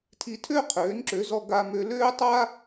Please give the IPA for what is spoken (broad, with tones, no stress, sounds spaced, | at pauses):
tʰ i˧ tʰ ø˥ qʰ øː˩˥ n ǁ ø˩˥ z ɔ˧ ɡ a˧ m ø˧ l øː˥ tˤ a˥